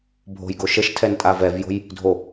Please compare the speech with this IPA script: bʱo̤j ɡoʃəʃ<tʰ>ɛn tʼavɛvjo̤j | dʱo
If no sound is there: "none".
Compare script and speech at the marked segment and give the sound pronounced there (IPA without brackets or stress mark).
tʰ